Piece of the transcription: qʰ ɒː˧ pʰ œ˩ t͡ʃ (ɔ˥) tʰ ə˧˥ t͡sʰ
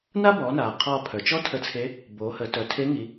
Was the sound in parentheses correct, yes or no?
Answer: yes